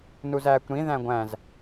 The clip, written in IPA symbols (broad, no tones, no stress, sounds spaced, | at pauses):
n u z æː kʷ ɾ ĩ ð æ̃ ɡʷ æ̃ z